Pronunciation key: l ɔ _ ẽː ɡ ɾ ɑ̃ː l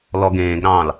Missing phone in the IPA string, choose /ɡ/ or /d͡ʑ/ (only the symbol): ɡ